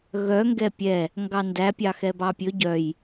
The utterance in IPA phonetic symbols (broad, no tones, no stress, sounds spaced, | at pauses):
ɣ œ ŋ ɡ ɛ pʲ ɛ | ŋ ɡ ɑ n d æ pʲ ɑ x ɛ b ɑ pʲ ɵ ɟ œ j